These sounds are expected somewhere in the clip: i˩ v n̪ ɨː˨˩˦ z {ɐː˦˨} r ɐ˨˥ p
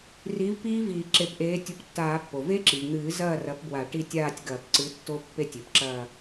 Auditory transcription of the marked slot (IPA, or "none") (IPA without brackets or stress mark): ɐː˦˨